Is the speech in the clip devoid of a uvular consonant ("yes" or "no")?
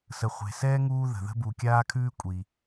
no